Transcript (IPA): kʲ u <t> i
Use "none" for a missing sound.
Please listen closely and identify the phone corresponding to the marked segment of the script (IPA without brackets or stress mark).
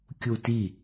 t